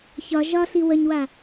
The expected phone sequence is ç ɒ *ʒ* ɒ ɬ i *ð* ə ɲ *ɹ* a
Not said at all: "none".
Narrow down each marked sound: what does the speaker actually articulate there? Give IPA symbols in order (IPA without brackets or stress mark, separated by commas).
ʒ, w, w